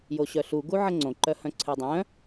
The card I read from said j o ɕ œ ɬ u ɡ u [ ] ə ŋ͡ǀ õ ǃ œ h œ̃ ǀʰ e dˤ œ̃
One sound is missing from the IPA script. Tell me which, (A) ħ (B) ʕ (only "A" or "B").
B